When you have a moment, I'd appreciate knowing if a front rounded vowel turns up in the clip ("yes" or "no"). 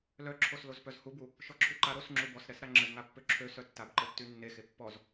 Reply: yes